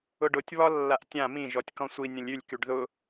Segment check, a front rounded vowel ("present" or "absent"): present